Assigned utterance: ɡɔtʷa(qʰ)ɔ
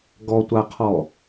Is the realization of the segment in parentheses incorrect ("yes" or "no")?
no